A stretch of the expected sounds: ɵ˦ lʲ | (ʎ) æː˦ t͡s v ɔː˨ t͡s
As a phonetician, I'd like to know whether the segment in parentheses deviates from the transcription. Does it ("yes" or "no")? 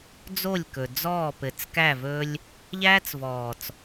no